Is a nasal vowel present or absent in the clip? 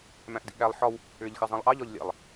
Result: present